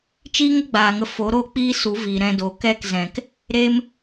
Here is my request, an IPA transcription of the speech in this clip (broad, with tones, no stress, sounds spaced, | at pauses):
t͡ʃ iː˦ ŋ ə˦ ɡ͡b aː˨ ŋ ə˧ f o˨˦ ɾ oː˦ k͡p iː˦ s u˨˦ v iː˨ ɾ ɛ̃˧ d o˨ k ɛ˦˨ k z ɛ̃˨ k | ɾ e˧ m